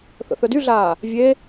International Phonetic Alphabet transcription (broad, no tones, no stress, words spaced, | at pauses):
θə̰θœdyɮaː | vʲe